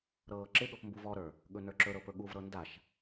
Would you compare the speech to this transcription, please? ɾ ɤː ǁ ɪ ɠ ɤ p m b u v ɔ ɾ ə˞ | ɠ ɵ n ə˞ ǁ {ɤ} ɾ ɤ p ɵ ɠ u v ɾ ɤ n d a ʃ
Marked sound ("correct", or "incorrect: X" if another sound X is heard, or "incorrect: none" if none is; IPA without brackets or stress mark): incorrect: ɵ